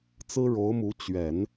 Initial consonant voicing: voiceless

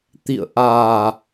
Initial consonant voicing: voiceless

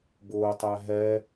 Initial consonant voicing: voiced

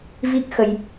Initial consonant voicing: voiced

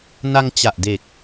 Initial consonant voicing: voiced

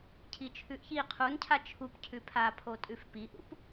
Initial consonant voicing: voiceless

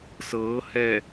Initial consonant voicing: voiceless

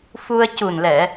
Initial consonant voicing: voiceless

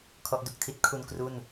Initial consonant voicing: voiceless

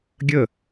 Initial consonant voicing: voiced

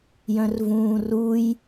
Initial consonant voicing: voiced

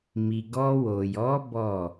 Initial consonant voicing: voiced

